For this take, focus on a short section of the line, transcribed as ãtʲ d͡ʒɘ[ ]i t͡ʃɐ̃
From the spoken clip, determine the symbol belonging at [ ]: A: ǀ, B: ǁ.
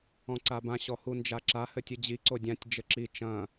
B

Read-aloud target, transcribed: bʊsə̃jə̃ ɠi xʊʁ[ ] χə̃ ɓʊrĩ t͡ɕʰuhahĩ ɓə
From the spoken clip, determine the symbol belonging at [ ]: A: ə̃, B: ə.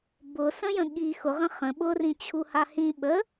A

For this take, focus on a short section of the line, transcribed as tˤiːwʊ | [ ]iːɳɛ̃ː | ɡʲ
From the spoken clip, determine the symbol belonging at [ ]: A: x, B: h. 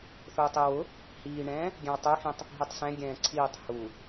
B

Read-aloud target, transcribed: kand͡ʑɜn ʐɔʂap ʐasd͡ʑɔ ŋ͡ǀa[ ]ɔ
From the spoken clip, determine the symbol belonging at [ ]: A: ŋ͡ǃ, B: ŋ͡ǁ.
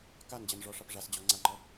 A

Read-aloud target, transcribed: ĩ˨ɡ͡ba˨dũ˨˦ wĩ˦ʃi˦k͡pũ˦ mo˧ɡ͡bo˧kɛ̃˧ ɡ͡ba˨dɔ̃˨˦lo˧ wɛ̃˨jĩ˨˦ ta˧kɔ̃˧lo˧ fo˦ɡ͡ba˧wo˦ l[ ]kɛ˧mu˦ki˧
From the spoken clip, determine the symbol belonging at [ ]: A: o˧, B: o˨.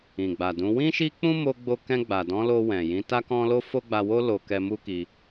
A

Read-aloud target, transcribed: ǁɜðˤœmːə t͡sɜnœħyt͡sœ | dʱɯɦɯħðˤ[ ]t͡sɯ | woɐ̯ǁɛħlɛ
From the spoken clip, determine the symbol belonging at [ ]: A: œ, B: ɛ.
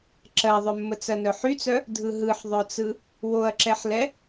A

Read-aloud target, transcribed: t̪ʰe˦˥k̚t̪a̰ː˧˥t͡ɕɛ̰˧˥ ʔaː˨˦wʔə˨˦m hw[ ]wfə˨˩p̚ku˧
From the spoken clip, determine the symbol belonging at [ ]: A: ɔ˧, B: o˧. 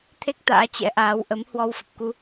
A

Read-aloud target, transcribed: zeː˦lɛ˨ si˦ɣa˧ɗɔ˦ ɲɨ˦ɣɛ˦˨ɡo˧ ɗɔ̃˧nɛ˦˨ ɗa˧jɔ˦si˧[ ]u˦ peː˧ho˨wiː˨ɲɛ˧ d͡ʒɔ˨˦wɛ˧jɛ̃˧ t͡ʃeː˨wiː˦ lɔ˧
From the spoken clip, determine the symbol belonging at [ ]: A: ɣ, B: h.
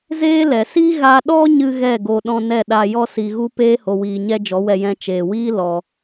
A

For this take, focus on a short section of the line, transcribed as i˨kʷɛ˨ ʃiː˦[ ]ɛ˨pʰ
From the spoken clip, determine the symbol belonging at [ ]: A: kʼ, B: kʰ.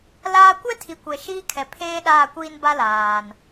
B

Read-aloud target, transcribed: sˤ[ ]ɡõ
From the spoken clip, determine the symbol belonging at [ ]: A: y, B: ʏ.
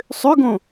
B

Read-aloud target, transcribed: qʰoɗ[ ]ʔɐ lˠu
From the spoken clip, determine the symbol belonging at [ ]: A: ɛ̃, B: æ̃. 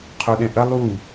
A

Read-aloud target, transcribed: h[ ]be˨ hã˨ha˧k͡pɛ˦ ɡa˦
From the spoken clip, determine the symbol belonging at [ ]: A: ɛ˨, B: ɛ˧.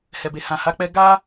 A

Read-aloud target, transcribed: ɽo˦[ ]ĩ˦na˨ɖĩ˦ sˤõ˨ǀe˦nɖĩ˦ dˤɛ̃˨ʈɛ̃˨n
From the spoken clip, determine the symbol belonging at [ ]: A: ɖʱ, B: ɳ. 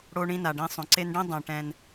B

